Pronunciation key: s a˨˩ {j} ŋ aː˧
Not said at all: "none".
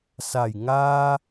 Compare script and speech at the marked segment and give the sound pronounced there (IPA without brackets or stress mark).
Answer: j